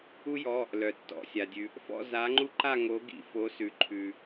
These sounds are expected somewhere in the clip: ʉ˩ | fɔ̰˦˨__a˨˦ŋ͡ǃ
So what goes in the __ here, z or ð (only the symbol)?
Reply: z